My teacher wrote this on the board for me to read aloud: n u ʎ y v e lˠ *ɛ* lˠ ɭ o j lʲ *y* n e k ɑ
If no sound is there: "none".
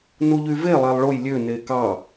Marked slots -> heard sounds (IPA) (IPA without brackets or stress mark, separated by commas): æ, ø